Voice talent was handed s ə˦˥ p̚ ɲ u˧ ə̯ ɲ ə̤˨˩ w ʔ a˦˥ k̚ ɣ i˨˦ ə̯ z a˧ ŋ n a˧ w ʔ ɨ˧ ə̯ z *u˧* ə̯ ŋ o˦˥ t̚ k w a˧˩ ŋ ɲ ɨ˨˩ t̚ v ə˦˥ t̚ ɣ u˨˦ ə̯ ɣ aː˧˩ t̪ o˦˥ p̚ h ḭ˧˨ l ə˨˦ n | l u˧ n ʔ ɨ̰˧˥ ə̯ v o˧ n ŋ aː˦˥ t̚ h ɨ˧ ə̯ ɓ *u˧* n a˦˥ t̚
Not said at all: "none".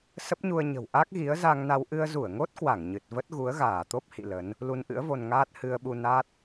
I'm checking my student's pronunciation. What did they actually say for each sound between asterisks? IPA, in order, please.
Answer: u˧˩, u˧

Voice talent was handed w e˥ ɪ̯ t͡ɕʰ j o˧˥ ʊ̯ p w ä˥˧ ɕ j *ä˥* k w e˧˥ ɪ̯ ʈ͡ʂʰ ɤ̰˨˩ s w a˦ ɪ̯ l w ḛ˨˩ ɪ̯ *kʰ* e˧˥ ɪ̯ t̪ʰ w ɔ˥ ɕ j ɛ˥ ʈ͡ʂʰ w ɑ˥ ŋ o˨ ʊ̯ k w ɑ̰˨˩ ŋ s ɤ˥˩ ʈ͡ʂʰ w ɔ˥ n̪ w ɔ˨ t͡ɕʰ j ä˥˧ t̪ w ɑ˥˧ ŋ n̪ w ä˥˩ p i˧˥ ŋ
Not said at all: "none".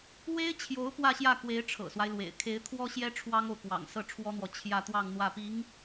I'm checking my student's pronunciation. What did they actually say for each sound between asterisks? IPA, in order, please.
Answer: ä˥˩, kʰ

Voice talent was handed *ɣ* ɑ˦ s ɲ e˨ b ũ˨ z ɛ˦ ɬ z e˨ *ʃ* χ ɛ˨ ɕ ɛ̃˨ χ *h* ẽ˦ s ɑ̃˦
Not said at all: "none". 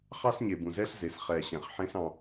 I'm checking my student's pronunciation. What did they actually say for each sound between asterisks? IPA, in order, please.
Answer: χ, s, ħ

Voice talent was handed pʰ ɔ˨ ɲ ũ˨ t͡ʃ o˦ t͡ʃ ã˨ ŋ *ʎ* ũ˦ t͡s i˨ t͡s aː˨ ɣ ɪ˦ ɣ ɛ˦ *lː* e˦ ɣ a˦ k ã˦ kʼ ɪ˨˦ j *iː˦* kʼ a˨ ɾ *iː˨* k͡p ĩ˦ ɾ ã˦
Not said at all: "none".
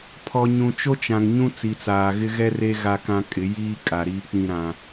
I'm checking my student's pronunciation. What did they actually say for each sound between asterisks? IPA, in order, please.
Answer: ɲ, r, iː˦, iː˦

